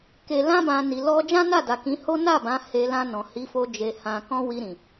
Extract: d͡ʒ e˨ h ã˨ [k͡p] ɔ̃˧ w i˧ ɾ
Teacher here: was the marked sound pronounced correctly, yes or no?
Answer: no